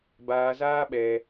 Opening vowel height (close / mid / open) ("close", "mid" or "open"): open